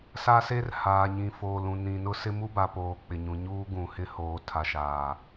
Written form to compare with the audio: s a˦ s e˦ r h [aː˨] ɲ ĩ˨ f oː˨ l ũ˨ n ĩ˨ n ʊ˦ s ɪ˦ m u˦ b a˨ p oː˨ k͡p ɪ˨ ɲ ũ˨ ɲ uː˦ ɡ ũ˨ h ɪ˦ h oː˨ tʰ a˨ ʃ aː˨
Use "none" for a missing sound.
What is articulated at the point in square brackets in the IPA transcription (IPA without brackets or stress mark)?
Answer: aː˨